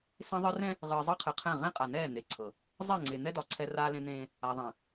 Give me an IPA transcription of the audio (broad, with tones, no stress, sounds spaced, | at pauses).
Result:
s ẽ˦ ðˤ ɨ˦ r ɛ̃˦ | ʁ ɨː˨ zˤ ɤ˦ qʰ ɨ˨ qʰ ɛ̃˦˨ ʁ ẽ˦ qʼ a˨ n ɛː˦˨ n̪ e˨ ǀʰ ɤ˨ | zˤ ɛ˦˨ ŋ͡ǀ e˨ n̪ ɛ˦ d ɒ˨ ǀʰ ɛ˦ r aː˦ l ẽ˦ n̪ ẽː˦ | a˨ ðˤ ẽ˨